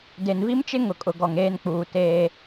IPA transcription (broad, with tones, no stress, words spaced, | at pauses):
de˨nvi˦mt͡ʃɪ˦ ŋʊ˨kʼʊ˨ ɡɔ˨ŋeː˦nk͡puː˨ teː˦